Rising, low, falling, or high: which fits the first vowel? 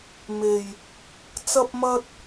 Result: low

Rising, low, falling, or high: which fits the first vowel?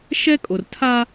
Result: high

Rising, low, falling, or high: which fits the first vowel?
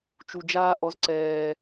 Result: low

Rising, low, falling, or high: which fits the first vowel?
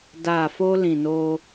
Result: low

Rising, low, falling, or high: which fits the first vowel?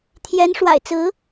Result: rising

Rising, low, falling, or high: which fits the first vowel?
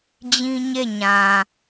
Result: high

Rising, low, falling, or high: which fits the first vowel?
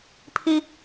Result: high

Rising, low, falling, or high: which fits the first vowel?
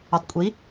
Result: low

